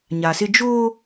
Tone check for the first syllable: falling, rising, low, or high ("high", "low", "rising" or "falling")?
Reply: low